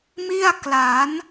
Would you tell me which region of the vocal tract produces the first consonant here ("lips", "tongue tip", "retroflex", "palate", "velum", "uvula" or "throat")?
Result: lips